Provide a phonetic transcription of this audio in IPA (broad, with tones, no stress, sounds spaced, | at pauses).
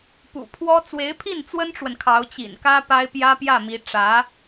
p ṵ˨˩ pʰ w ɔ˥ t͡s w e˧˥ ɪ̯ pʰ i˥˩ n t͡s w ə˥ n ʈ͡ʂ w ə˨ n kʰ ɑ˧˥ ʊ̯ t͡ɕ ḭ˨˩ n k ä˥ p a˥ ɪ̯ p j ä˥ p j ä˥˩ m i˧˥ ʈ͡ʂ ä˧˥